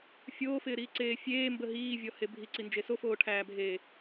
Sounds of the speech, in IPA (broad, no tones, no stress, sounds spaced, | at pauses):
fʲ oː f ɪː ɾ iː ǀ eː fʲ eː m b ə ɦ iː vʲ ɔ h e bʱ i ǀ i n d͡ʒ e s o f oː ʈʰ æː bʱ eː